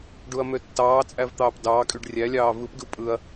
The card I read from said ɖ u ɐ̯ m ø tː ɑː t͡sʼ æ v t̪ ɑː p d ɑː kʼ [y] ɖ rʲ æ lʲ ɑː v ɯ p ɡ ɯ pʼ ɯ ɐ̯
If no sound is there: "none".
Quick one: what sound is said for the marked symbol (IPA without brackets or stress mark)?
y